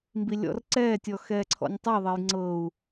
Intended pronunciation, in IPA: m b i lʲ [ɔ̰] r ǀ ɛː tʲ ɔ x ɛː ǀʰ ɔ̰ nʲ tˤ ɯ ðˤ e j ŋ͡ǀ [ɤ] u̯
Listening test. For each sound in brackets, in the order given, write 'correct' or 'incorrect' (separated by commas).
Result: correct, correct